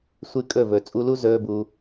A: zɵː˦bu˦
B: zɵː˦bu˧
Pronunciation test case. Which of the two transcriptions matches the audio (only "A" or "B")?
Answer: B